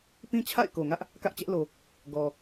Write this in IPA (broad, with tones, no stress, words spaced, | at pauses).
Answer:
pĩ˦t͡ɕʰa̰˦˨ɪ̯ ko˨ŋä˦ʔ | kä˦ʔt͡ɕɛ˦ʔlo˨ | ɡɔ˨